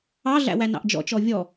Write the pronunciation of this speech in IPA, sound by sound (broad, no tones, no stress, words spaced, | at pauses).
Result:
ɑɮæ̰wæ nɑ̰ʔd͡ʒɔ̰t͡ʃɔ vʲɔ